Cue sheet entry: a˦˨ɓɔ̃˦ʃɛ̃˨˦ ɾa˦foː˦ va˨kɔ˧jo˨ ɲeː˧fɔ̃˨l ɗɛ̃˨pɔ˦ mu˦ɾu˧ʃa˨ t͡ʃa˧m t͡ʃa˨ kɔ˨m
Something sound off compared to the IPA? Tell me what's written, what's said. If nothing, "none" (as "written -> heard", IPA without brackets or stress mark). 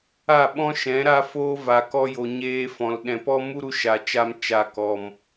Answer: none